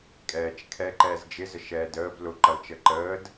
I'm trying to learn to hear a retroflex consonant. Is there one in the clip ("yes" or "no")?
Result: no